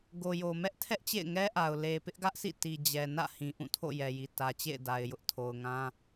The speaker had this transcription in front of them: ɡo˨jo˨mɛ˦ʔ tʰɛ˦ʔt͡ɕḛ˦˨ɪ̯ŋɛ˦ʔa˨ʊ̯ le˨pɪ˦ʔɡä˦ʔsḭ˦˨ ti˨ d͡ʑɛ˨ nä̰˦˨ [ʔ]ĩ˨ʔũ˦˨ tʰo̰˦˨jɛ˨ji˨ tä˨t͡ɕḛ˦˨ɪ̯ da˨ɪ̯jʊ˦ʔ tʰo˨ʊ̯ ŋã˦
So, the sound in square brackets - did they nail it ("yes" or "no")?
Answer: no